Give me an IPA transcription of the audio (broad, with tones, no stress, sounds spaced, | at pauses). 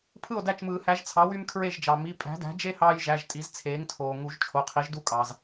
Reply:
pʰ ɯ˥˩ o̯ d æ˥˩ t͡ʃ m ɯː˨˩˦ h æ˩˥ ʒ t͡sʰ ɑ˩˥ w y˦ m kʰ ɹ e˥˩ ʒ d͡ʒ ɑ˩ m i˩˧˩ pʼ æ̤˩˥ d æ̤˩˥ d͡ʒ e˦ h ɑː˦ j ʒ æ˩˧˩ ʒ tʼ i˩˥ z t͡sʰ eː˩˥ ŋ tʰ oː˩ ŋ u˨˩˦ ʒ t͡ʃʰ o˩˧˩ qʰ i˩˥ ʒ d u˥˩ kʼ ɑ˩ z